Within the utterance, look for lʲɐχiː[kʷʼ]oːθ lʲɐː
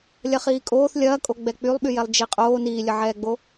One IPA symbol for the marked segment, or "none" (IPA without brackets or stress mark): kʼ